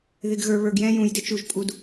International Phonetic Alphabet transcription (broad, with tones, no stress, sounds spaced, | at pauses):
ð ɪ˨ ɡ ɣ ə˞˨ β ə˞˨ ɡ j ɛ̃˦ j ũ˨ j d ɪ˦ t͡ʃ u˨ ʒ pʼ u˨ d